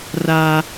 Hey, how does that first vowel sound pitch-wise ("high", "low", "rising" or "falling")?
high